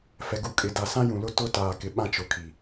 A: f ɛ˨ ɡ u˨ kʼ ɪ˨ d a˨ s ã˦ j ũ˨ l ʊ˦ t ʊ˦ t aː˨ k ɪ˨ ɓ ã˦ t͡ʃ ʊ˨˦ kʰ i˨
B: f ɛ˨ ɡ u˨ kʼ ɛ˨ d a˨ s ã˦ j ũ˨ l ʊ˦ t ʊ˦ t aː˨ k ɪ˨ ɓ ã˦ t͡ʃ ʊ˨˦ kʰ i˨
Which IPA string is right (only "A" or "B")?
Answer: A